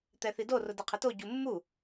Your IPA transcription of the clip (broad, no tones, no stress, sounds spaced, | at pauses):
t̪ ɛ θ i d o r ʊ d e qʰ ɪ t o ɟ u mː u